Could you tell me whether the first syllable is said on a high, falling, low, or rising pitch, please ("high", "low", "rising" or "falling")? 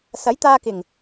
rising